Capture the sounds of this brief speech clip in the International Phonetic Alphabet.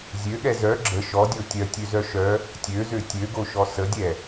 zʲ ø ɠ ɛ z œ ɡ͡ǁ ə ʃ ɔ dʲ o tʲ œ tʲ ø z œ ʃ œ | tʲ ø z ø tʲ ø ɡ o ʃ ɔ s ə dʲ ɛ

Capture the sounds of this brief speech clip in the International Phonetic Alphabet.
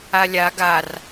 a lʲ a ɡ a r

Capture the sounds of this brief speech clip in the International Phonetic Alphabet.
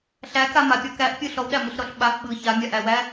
ɬ æ k a m a pʲ ɔ k æ ʔ pʲ ɯ ɬ ɔ w ɗ æ m ɯ ɬ ɾ ɔ ɬ ɓ a ʔ ɓ ɯ ç a mʲ a ʔ æ w æ

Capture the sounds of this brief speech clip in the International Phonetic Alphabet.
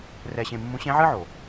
r ɛ˧ ɕ ẽ˧ mː ũ˧˥ ɕ ẽ˧˥ ʕ ɨ˥ ʕ o˩

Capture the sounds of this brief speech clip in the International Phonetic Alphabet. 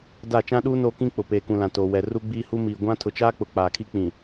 d a˦˨ t͡ʃ ã˦ ɗ uː˦ n oː˦ k ĩ˦ k͡p ʊ˨ p eː˨ k ũ˨ l ã˨ t oː˨ w ɛ˨ r u˦ ɡ͡b iː˦ h u˦ m iː˨ ɡʷ ã˦ tʰ ʊ˨ t͡ʃ aː˦ k͡p ʊ˨ k͡p aː˨ kʰ i˦ k͡p ĩ˨

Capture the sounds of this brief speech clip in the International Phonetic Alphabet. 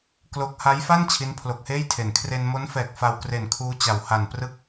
k l o˦˥ k̚ h a˦˥ j f a˥˩ n t͡ɕʰ i˦˥ n pʰ l o˨˩ k̚ h eː˥˩ j tʰ e˩˦ n kʰ r e˧ n m o˦˥ n f ɛː˨˩ k̚ f a˧ w k r e˨˩ n kʰ uː˧ t͡ɕ a˩˦ w h a˨˩ n p r ɯ˥˩ k̚

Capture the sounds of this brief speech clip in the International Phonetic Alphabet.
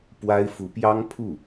p w a˥ ɪ̯ f u˧˥ p j ɑ˥ ŋ pʰ u˥˩

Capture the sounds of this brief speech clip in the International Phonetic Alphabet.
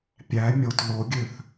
pʲ æ mʲ o t l o ɡʲ ø θ

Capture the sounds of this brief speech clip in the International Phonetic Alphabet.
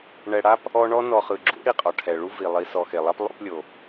ɳ ɛ˨ ɽ a˥ p | ɔ˦ ɳ ɔ˥ n ɔ˨ χ ɯ˩ ɡ͡ǁ ṵ˥ ɽ i˩ qʼ ɔ˩ ʈʰ ɛ˩ ɭ u˥ v i˩ lˠ i˨ s ɔ˨ x e˩ lˠ a˦ p lˠ o̰˦ p lʲ o˩

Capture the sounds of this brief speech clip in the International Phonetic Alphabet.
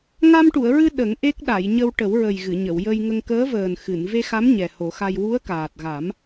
ŋ a˧ m ʈ u˨˩˨ ə̯ ɹ ɨ˧ ɗ ə˨˩˦ ŋ ʔ e˦˥ k̚ ɗ a˨˩˨ j ɲ ə˧ w ʈ ə˨˩˦ w ɹ ə˨˩ j ɣ ɨ˨˩˨ ɲ ə˨˩˨ w j ə˧ j ŋ ə˧ ŋ k əː˧˥ v əː˨˩ n x ɨ˨˩˨ n v e˧ x a˧˥ m ɲ ɛ˨˩ h o˨˩˦ x a˧ j w u˧˥ ə̯ k aː˨˩ t̚ ɣ a˨˩˦ m

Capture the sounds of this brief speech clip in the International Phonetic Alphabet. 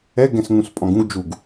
ɛ ɡ ɛ̃ s ŋ ũ s pʼ ɔ̃ ɡ ũ ɡ d͡ʒ u ɡ

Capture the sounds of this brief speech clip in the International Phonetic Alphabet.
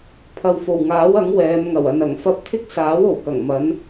pʰ ɐ˨ w f o˨˩ w ŋ aː˨˥ w ɐ˨˥ ŋ w ɛː˨˧ m ŋ ɐ˨˩ w ɐ˨ n ɐ˨˩ ŋ f ɐ˧ p̚ t̪ʰ ɪ˥ k̚ s aː˨˥ w o˨˩ w k ɐ˨˩ ŋ m ɐ˨˥ n

